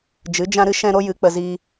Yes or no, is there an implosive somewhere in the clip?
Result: no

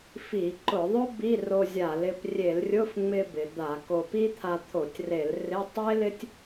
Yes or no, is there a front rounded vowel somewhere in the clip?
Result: no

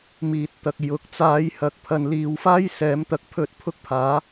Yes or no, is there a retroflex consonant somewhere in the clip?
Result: no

